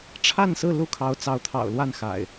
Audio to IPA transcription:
ʈ͡ʂʰ a˥˨ n s ɹ̩˥˨ l u˥˨ kʰ ɑ˨˦ ʊ̯ t͡s ɑ˨˦ ʊ̯ t̪ʰ ɑ̰˨˩ ʊ̯ l w a˥˨ n x a̰˨˩ ɪ̯

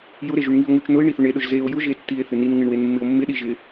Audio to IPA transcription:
j ʊ ɾ e ʒ u ɳ ŋ i o̯ ŋ u t͡ʃ n ʊ e̯ ɳ i θ ʊ ɳ e ɗ ʊ ʒ z e o̯ j ʊ ʒ e tː i e̯ θ ɪ n i n ŋ ɪ ɳ w e n mː ɪ o̯ mː ɪ ɗ i ʒ ɪ

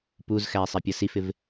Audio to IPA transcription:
p u z x æ i̯ sˤ ɛ pʲ ʌ s i f ɪ v

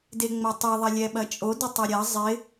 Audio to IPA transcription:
d e ŋ͡m ɐ tˤ e ðˤ ɐ lʲ ɛ ɓ ɐ t͡ʃʼ o d ɪ tˤ ɛ ɾʲ ɐ zˤ ɪ

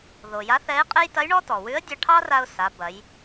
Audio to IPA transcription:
ð o˩ j a˧˥ θ ɛ˧˥ ɪ̯ qʼ e˥ j t ɐ˧˥ j ɳ ɔ˥ t ɔ˩ w ʉ˧˥ ə̯ dʲ ɑ˧ ʈʰ ɑ˥ r a˧ ʊ̯ s a˩˧ b ɐ˩˧ j

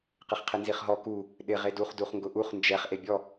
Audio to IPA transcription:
q ɪ χ qʰ ɪ n z i χ ɦ ɔ k u | ɗ ɪ ʁ e d u χ d u χ ŋ ɡ ʊ ʔ u χ n d͡ʒ ɛ χ ʔ e bʲ ɔ

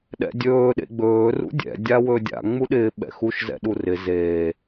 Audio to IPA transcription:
ɗ ɛ̰ dʲ ɵː ɗ ḛ ɡ͡b ɵː r ṵ dʲ ɛ̰ dʲ a w ɵ dʲ a̰ ŋ͡m u ɗ ɪː ɓ ɛ̰ x u ʃ z ɛ̰ ɗ u r ɪ z eː

